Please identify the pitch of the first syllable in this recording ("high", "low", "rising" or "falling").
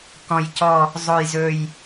low